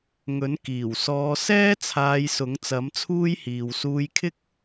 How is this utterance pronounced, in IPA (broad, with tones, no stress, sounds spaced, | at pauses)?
ŋ ɵ˨˥ n k iː˨˩ w s ɔː˨˧ s ɛː˥ t͡sʰ aː˧ j s ʊ˨˥ ŋ t͡s ɐ˨˥ m t͡sʰ uː˥ j h iː˨ w s uː˧ j kʰ ɪ˥ k̚